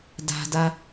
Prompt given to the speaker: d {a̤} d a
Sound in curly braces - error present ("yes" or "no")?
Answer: no